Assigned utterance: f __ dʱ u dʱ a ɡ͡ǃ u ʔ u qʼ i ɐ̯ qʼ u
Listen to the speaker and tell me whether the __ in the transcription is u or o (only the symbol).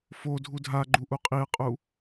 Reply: o